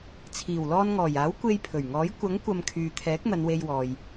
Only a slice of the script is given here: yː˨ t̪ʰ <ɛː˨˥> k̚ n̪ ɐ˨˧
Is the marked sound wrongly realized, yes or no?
no